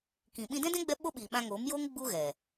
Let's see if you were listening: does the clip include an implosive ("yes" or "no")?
yes